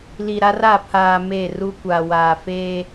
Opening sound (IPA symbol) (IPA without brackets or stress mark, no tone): l